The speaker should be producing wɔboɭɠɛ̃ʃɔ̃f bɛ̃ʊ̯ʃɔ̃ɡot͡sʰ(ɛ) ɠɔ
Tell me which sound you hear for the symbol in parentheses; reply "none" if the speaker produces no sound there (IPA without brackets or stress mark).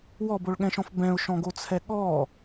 ɛ